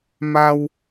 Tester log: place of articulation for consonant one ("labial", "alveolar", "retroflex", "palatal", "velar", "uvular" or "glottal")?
labial